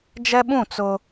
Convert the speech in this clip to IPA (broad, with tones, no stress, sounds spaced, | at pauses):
d͡ʒ ɛ˦ ɓ ũ˦˨ t͡s ʊ˦